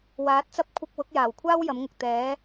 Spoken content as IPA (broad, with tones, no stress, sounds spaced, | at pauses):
w aː˨˥ t̚ t͡s ɐ˥ p̚ kʷʰ ɪ˧ k̚ w ʊ˨˥ k̚ j aː˨˩ w kʷʰ aː˥ w j ɐ˨˥ m ŋ ʊ˨ k̚ t̪ ɛː˨˥